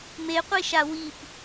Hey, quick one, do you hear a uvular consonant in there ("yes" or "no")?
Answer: yes